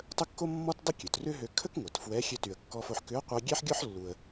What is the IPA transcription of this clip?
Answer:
tˤ ə˥ kː o˥ mː ɔ˥ t dˤ ə˥ kʲ ø˩ t r ʏ˥ ɦ ø˧ kʰ ə˥ k ŋʷ ɛ˩ t f w ɛ˧˥ xʲ ø˧ t y˩ ə̯ kː ɔ˧ f o˧ ħ k ʏ˧˥ ə̯ qʷ i˧ ɡʲ ɛ˥ ħ ɡʲ ɔ˥ ħ lː u˩ ə̯

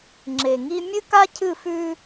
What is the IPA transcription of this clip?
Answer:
ŋ͡ǁ e˨ ŋ i˦ mʲ ɨ˦ k a˦ cʰ ɨ˦˨ f ʉ˦

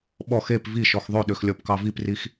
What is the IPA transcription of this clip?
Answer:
ɓ ɔ x e p v i ʃ ɔ x ðˤ ø ɗ ø x lʲ ɔ p k ɑ v i p r i x

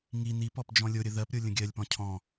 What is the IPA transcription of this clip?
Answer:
ŋ i n i p ɔ p d͡ʒ ɔ̃ lʲ o ɾʲ ə ð ɜ p ɾʲ o lʲ ə̃ ɡʲ ɜ lʲ p ɔ̃ cʰ ɔ̃

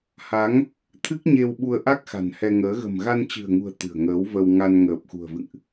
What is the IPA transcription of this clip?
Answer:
h a˨˦ ŋ | t̪ʰ ɨ˦˥ k̚ ɲ e˧ w ɓ u˧ ə̯ ʔ a˦˥ k̚ x a̤˨˩ n h ɛ˧ ŋ əː˨˦ ɣ ə̤˨˩ m ɣ a˧ n t͡ɕ ɨ̤˨˩ ə̯ ŋ ṳ˨˩ ə̯ t̪ ɨ̤˨˩ ə̯ ŋ əː˨˦ w v ə˧ w ŋ a˧ n ŋ əː˨˩ p̚ x ṳ˨˩ ə̯ v ɨ̰˧˨ ŋ ʔ

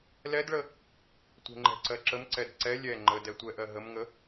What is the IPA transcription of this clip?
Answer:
l ɛ d ɭ ə | tʷ e̤ ŋ͡ǃ ɛ̤ ǀ ɜ ǁ ə m ǀ ɛ d ǀ ɛ lʲ ɛ ŋ͡ǃ ə d ɛ tʷ ɛ ʔ ɜ ɦ ə m ŋ ə

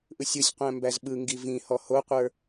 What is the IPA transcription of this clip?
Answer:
ʔ ɯ sʲ ɯ sʲ qʷ æ̃ m b æ z ɓ ɯ ŋ ɡ i v ĩ h ɔ h o qʷ ə˞

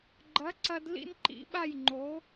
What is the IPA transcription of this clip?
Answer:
ɡ͡ǃ ɐ˩˥ ǀ ɐ˧ d l ḭ˧ n ǃ ḭ˩˥ ɓ a˥˩ j ŋ͡ǃ o˩˥

